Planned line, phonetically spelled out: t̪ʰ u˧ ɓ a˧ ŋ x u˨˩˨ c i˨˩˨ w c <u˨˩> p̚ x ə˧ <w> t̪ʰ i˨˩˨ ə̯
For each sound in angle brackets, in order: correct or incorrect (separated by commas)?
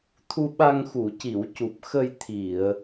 correct, incorrect